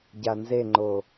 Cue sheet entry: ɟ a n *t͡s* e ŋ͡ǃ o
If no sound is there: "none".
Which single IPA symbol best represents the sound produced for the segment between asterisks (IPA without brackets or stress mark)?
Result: z